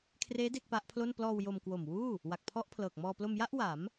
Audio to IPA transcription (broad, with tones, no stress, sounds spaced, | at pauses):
kʰ r eː˦˥ d e˥˩ k̚ p a˦˥ ʔ pʰ l o˥˩ n p l ɔː˧ w j o˧ m k w o˨˩ m w uː˥˩ | w a˨˩ k̚ pʰ ɔ˦˥ ʔ pʰ l ɤː˨˩ k̚ m ɔː˧ p l o˧ m j a˥˩ ʔ w a˩˦ m